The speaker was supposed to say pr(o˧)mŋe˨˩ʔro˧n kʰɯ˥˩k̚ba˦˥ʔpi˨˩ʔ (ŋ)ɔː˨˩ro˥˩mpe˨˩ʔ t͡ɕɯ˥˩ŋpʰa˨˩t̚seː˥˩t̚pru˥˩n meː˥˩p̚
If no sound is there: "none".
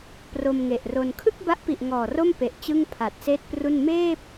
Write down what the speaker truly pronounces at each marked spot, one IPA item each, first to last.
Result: o˧, ŋ

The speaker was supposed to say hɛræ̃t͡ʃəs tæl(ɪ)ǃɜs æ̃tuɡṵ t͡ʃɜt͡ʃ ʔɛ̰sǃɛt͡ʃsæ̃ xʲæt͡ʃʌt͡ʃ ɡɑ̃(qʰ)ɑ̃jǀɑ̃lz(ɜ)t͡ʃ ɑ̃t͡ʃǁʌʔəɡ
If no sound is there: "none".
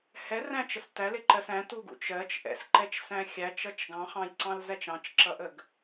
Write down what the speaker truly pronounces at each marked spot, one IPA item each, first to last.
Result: ɪ, χ, æ

